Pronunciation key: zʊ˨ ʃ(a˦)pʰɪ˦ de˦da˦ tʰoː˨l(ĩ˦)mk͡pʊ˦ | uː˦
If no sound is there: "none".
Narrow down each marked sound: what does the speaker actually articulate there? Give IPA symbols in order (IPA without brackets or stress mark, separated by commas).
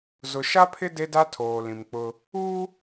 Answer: a˦, ĩ˨